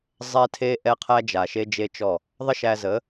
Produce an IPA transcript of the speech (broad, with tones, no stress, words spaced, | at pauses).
zˤɛ˦tʰe˦ ʔɛ˦qʰæ˦ d͡ʒa˨ʃe˦d͡ʒe˦t͡ʃɔ˦˨ | ðˤə˦ʃæ˧zə˨˦